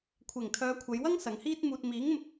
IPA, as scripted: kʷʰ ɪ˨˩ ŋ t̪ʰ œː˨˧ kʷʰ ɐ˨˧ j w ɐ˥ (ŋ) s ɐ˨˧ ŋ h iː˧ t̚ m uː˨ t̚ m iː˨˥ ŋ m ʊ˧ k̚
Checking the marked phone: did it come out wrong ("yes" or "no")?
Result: no